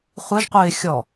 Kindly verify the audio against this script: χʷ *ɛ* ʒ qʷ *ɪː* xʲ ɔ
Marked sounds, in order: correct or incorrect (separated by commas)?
correct, correct